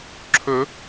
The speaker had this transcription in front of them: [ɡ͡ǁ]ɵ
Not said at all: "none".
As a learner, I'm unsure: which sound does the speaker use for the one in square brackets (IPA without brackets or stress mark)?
ǁʰ